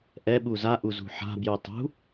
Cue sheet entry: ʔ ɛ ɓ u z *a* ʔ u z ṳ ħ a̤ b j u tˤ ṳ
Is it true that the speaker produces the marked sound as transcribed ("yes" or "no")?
yes